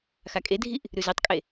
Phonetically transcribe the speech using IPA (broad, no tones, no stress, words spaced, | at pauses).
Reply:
xakʼedʱiʔ | ɾʉzetˤkʼe